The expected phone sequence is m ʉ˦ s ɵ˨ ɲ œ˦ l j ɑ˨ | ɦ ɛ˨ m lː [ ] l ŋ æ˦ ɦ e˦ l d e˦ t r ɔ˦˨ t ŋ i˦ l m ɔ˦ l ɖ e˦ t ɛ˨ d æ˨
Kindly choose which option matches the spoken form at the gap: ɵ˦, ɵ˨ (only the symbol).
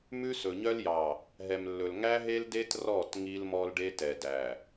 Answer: ɵ˨